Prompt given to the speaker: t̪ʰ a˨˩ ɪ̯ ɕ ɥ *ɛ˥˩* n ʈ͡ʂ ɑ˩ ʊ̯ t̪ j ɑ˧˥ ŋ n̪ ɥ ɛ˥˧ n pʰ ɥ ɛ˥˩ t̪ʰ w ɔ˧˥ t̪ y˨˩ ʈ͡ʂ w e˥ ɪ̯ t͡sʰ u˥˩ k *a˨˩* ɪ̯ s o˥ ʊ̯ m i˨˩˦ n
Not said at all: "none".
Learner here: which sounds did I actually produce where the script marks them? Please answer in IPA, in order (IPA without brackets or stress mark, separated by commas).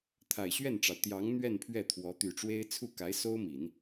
ɛ˥˩, a˧˥